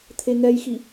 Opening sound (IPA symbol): t̪ʰ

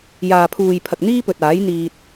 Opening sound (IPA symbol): j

